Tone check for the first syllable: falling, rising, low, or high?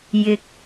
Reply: low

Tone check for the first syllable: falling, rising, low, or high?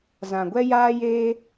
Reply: low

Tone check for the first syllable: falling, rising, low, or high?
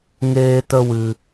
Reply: high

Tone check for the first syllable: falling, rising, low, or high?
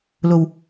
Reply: low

